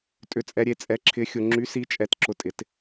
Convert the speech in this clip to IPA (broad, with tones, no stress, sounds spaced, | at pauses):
tʼ ʏ˨ t͡sʼ ɛ˨ ɾʲ e˨ t͡sʼ ɛ˨˥ ǁʰ ɪ˨˥ xʲ ʊ˨ ŋ͡ǁ y˨˥ s i˨˥ t͡ʃʼ ɛ˨ t ǁ ʊ˨ tʼ ɪ˨˥ t